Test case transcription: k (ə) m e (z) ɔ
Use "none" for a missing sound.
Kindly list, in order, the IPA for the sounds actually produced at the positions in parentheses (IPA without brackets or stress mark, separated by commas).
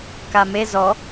a, z